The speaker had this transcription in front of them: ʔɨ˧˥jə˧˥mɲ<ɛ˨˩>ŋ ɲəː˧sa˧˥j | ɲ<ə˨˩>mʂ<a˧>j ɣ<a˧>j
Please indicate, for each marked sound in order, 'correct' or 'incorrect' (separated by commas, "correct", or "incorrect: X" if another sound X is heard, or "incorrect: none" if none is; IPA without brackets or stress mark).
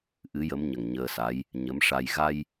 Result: incorrect: ə˨˩, incorrect: ə˧˥, correct, correct